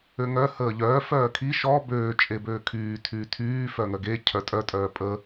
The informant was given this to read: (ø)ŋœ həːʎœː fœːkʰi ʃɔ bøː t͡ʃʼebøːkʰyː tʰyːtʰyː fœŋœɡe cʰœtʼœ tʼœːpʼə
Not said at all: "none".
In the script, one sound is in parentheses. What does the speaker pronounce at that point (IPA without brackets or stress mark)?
ø